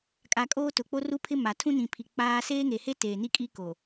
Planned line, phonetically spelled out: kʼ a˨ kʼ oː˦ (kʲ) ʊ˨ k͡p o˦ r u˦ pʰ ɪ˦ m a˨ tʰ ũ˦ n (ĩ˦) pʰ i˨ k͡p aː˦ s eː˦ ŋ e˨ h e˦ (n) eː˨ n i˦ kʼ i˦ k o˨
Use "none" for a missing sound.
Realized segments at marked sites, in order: t, ĩ˨, t

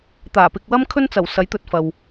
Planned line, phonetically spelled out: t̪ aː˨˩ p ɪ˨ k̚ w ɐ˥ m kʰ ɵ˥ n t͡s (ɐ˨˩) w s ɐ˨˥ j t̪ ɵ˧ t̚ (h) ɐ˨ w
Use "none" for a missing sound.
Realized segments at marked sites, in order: ɐ˨˩, f

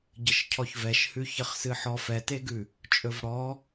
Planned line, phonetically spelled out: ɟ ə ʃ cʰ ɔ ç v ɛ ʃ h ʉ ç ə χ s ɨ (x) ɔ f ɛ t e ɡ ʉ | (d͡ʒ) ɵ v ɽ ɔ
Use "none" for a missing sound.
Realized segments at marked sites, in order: ħ, t͡ʃʼ

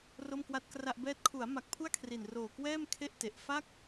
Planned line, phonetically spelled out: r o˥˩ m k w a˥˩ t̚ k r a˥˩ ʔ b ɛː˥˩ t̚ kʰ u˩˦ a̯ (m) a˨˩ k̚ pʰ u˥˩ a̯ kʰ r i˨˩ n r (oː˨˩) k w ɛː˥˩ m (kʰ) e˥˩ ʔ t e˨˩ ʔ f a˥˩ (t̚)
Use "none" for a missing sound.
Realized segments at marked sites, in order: m, oː˨˩, kʰ, k̚

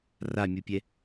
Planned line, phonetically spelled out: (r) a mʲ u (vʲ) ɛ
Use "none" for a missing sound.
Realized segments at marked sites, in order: r, pʲ

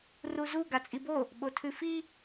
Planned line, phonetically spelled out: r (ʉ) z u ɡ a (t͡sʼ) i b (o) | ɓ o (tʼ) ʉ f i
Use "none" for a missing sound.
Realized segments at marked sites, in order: u, t͡sʼ, o, tʰ

